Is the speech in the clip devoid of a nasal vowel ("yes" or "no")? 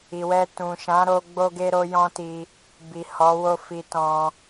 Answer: no